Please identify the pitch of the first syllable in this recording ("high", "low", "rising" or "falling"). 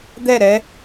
falling